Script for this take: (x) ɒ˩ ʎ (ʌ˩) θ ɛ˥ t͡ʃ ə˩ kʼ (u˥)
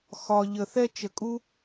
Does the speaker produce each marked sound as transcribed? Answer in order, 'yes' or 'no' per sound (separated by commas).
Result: yes, no, yes